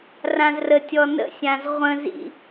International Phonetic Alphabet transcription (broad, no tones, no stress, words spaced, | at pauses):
rãzrətʲɔ nə̰ sʲãzʁʷə̃zḭ